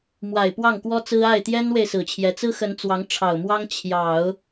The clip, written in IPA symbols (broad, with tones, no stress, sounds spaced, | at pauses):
m w a˨˩ ɪ̯ p w ɑ˥˩ ŋ k w ɔ˥ t͡s ɹ̩˥ a˥˩ ɪ̯ t̪ j ɛ˥ n w e˨ ɪ̯ s ɹ̩˨˩ t͡ɕʰ j ɛ˧˥ t͡s ɹ̩˥ x ə˧˥ n t͡s w ɑ˧˥ ŋ ʈ͡ʂʰ ɑ˨˩ ʊ̯ m w ɑ˥ ŋ t͡ɕʰ j ɑ˨˩˦ ʊ̯